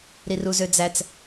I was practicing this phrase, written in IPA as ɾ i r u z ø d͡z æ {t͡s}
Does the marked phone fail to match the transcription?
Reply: no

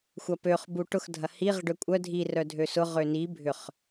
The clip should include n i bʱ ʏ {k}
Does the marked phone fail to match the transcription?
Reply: yes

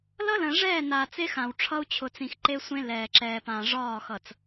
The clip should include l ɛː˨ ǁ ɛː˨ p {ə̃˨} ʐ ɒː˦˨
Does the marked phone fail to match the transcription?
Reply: yes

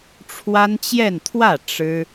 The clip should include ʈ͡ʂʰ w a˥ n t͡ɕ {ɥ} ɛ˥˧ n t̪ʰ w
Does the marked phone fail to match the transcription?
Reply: yes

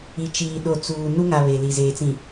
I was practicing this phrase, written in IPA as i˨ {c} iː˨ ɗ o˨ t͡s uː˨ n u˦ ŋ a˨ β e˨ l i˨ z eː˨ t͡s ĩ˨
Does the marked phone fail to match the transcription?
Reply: yes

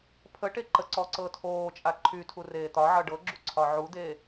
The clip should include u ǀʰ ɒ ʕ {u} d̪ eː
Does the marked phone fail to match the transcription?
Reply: no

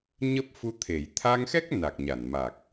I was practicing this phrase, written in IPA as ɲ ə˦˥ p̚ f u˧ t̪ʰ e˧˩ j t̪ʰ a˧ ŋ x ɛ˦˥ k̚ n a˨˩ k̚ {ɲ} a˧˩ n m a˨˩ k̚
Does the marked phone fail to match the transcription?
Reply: no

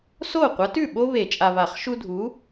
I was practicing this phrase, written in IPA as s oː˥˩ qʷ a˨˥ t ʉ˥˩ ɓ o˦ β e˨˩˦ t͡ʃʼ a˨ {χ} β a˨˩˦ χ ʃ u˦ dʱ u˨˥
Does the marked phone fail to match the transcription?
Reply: yes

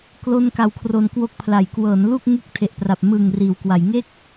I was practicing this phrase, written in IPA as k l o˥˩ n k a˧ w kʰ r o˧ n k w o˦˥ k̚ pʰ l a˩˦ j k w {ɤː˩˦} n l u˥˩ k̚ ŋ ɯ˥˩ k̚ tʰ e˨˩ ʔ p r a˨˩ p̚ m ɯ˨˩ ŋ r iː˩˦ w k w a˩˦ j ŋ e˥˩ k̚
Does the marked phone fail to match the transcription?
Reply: no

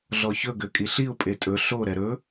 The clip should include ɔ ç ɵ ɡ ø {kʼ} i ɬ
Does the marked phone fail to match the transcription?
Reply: no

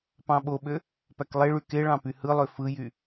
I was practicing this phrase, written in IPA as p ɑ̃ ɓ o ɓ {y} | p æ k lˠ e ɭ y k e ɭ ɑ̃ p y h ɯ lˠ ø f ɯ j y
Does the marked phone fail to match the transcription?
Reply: yes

